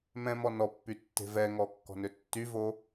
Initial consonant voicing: voiced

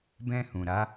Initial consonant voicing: voiced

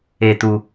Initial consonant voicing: voiceless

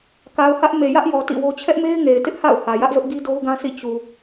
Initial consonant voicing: voiceless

